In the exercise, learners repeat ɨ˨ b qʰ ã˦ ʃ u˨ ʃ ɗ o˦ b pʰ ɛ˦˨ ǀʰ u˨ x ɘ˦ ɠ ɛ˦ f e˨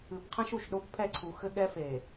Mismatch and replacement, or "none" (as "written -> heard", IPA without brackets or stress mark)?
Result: none